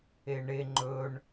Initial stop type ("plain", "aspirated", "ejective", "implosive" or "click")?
click